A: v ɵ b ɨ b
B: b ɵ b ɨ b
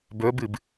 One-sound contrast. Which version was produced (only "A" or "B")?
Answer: B